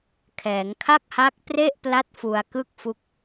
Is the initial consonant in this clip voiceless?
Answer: yes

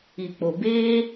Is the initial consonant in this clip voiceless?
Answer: yes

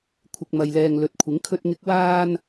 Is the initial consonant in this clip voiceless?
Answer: yes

